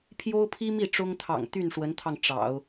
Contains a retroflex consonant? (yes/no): yes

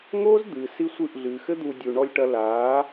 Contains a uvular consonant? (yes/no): no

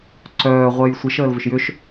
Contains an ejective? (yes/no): no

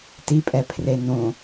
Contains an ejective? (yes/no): yes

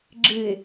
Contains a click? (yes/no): yes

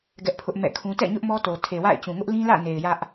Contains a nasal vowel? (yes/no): yes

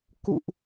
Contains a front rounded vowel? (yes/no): no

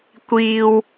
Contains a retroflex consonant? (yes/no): no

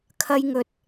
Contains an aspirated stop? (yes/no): yes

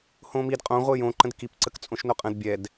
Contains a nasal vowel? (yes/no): yes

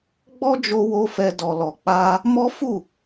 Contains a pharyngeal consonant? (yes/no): no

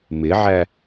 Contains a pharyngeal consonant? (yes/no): yes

